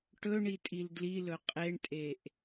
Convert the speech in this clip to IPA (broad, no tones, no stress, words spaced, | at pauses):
ʈɵɳitʼil dlilɵ qʼeɳtʼeʔ